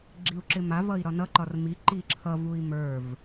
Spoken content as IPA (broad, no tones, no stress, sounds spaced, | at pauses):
ɡ͡ǁ i u̯ ǁ ɪ m a v ʌ i̯ ɾ ɒ n ʌ ǃ ɒ r m i ǃ i ǁʰ ʌ v u i̯ m ə˞ v